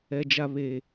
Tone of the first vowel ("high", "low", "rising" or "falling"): low